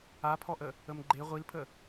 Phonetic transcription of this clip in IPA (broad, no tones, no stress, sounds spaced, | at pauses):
a pʰ ɔ ʔ ə | ə m ɡ͡ǃ e ʁʷ i l pʰ ə